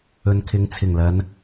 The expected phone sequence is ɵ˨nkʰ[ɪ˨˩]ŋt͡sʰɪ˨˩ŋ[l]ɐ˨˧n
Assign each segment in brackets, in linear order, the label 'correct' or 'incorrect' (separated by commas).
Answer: incorrect, correct